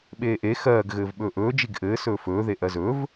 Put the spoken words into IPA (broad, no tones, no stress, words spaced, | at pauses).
ɓeːʔe xɜːɡ ɣɘːvɓɵːʔɵː d͡ʒiɡʔɘː sɵːfɵː ðeʔɜzɵv